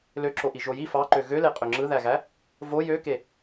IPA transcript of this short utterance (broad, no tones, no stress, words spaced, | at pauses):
løǁoʔi ʒoji fɑǃø ɣøle qʼøŋ͡ǁɯðæɣæ | vo jøke